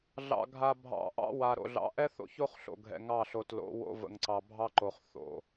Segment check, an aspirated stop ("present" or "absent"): absent